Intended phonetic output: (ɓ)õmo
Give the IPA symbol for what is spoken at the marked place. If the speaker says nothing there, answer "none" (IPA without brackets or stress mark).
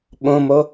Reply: ɓ